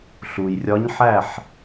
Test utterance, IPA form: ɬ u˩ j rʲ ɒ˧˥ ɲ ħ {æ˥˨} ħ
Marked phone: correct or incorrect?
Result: correct